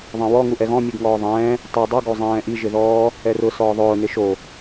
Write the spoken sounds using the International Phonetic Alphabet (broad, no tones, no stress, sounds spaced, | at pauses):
ðˤ ɛ̃ w ɔ ŋ u ʔ ɛ ɣ ɔ̃ mʲ u ɡ ŋ ɔː ðˤ ɛ̃ː | tˤ e dˤ u ɡ o zˤ ɛ̃ː ʔ i ʒ ɪ ð ɔː | ɛ r ʊ s ɔː ðˤ ʊː n ɪ ʃ o